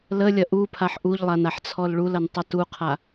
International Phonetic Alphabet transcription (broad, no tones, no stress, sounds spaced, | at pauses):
l ə lʲ ɐ ʔ u pʰ a ħ ʔ u ʎ lˠ a n a ħ t͡sʰ ɔ l ɭ u l ɐ n tˤ ʌ t u qʰ a